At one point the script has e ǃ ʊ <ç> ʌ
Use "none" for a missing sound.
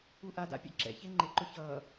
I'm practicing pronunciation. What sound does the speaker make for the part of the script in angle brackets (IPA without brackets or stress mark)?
ç